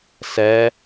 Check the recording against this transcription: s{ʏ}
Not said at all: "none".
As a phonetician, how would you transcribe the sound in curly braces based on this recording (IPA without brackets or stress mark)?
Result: ɛ